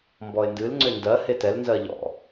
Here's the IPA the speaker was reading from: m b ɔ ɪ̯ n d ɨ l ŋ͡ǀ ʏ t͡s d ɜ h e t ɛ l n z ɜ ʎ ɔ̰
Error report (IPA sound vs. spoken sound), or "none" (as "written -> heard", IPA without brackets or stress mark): t͡s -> n